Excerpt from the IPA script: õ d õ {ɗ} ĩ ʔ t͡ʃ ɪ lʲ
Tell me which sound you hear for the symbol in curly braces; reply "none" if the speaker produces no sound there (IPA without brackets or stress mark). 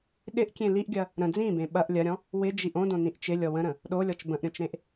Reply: n